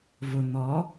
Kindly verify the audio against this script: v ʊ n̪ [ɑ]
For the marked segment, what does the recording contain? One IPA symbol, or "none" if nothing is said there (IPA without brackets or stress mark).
ɔ